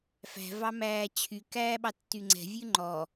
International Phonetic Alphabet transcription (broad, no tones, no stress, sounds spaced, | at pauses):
f æ̤ v ɑ m æː t͡ɕʰ y k æː ɓ ɑ tː y ŋ͡ǀ ɛ̤ vʲ ʉ ŋ͡ǃ ɔ